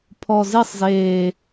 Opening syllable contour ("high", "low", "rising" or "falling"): low